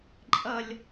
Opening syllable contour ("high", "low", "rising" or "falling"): high